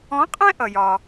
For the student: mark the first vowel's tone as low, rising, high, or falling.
rising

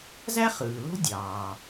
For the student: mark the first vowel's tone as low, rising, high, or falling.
high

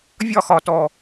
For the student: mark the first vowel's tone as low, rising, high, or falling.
falling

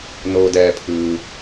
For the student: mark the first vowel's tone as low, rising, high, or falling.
low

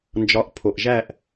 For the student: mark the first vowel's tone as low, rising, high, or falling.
rising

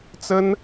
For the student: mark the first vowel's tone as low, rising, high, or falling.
high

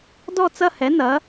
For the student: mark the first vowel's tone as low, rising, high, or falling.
falling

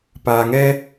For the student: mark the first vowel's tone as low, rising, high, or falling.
low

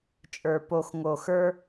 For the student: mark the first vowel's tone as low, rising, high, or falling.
low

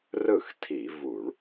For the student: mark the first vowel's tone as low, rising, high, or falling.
falling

